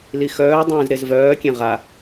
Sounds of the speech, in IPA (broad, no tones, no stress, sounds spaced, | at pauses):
l i x œː dˤ ẽː z ɾ e z v œː kʲ ẽ ʁ a